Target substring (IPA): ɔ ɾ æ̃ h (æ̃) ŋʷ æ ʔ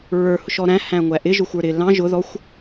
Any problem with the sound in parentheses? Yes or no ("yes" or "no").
no